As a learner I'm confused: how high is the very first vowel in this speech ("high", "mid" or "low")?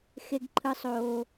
mid